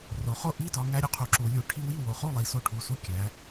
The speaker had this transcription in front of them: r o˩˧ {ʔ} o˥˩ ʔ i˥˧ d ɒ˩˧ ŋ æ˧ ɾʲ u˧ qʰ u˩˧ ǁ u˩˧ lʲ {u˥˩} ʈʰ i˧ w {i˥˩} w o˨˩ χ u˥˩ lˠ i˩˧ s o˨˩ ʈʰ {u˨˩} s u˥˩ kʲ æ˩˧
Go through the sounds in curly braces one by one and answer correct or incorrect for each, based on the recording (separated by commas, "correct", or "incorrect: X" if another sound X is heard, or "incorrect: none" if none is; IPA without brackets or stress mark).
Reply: incorrect: χ, incorrect: u˩˧, correct, correct